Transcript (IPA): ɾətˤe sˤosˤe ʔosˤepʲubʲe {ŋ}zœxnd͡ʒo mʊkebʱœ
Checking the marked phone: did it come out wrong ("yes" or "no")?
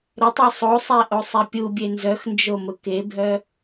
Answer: yes